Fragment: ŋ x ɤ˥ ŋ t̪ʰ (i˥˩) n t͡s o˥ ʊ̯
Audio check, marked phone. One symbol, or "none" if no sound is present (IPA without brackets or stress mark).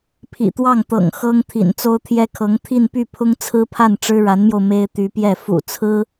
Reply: ḭ˨˩